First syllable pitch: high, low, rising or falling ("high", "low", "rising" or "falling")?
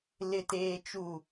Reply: low